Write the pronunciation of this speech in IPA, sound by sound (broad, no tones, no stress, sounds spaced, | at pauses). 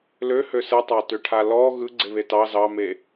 l ø h ø s ɯ tˤ ɑ t ø ʈʰ a l ɔ ɣ ɯ ɡ͡ǀ e β e t ɑ z ɑ m e